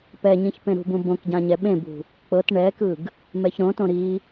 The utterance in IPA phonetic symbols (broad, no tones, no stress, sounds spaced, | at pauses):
p ɛ ɲ ĩ ç p ẽ ɾ ṳ b ũ b õ k ɟ ã ɲ ɛ ɓ ẽ b ṳ | k͡p ɤ t ɳ ɛ k ɯ ɡ | m ɛ ç ɾ õ t õ ɾ i